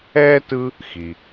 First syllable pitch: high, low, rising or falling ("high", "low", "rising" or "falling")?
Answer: high